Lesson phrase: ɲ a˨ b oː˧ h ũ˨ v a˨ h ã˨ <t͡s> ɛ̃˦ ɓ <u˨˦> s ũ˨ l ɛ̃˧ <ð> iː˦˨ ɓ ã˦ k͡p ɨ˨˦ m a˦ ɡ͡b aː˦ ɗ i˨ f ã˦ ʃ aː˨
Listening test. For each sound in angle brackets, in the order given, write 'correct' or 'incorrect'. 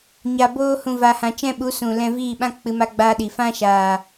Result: incorrect: t͡ʃ, correct, incorrect: v

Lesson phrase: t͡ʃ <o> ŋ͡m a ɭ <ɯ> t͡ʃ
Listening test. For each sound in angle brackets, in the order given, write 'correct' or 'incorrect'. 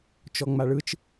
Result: incorrect: ɔ, correct

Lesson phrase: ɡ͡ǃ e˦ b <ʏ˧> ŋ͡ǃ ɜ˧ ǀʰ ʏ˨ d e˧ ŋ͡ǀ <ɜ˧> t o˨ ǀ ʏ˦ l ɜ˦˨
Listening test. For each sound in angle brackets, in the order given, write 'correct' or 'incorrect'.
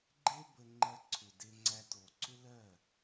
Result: incorrect: ə˧, incorrect: æ˧

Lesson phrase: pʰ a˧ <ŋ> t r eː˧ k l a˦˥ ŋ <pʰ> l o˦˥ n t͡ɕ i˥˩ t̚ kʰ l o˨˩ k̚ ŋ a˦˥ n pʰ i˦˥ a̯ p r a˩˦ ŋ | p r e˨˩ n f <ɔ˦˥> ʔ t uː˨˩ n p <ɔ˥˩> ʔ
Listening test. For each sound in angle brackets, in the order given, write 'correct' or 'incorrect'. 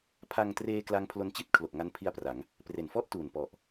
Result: correct, correct, incorrect: ɔ˥˩, incorrect: ɔ˨˩

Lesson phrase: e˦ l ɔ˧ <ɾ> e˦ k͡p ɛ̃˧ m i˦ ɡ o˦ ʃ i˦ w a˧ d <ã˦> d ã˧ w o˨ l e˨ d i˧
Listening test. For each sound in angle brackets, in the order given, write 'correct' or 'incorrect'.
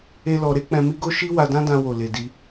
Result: correct, correct

